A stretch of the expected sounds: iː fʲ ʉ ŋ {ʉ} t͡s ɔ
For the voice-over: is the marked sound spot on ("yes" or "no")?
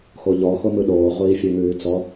no